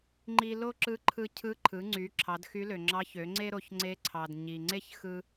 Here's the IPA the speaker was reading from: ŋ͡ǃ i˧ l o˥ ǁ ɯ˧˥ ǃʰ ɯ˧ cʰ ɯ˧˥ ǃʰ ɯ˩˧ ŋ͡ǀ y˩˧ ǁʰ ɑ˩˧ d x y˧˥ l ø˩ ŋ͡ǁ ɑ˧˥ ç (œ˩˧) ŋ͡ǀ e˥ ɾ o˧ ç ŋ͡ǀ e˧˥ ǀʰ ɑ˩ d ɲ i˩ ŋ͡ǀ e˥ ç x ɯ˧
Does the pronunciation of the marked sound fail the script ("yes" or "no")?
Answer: yes